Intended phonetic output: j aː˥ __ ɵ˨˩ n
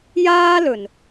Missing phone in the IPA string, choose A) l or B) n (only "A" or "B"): A